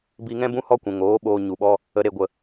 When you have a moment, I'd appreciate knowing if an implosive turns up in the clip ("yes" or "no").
yes